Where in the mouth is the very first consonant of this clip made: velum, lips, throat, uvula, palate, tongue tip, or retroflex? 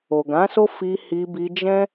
velum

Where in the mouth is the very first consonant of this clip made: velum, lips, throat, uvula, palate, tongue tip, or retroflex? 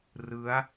tongue tip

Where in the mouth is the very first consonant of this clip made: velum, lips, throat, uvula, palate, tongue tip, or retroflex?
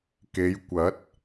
velum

